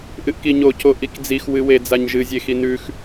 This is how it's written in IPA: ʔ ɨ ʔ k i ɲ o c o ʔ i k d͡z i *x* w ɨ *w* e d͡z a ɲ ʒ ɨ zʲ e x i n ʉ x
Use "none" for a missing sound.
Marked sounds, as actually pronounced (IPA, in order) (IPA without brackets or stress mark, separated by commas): x, w